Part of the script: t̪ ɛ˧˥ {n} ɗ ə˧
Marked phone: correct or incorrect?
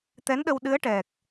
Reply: correct